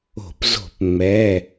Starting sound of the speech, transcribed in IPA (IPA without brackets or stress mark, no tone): o̤